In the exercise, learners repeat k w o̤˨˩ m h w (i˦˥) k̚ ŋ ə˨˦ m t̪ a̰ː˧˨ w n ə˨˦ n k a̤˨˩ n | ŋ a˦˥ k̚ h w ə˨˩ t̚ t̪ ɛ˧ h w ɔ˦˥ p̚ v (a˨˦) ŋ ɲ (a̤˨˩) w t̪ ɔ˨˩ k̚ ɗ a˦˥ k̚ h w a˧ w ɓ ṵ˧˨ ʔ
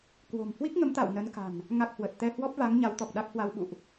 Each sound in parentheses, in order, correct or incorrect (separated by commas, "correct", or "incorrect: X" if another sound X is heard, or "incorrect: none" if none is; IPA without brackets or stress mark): correct, correct, incorrect: a˨˦